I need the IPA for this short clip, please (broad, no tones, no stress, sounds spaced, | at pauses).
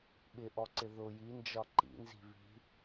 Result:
ɓ ɪ ʔ ɔ ǀ ɪ ð ʊ j i n d͡ʒ ɒ ǃ ḭ n z i̤ β i̤